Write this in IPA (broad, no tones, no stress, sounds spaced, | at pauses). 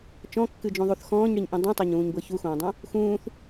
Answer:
t͡ʃ ɔ̃ kː ɨ d͡ʒ ũ ðˤ u θ x ɔ̃ː ɲ ɽ i ɲ ʔ ĩ dˤ ũ tˤ o ɲ ũː ɲ b ɤ ç u x õː dˤ õ | x ũː θ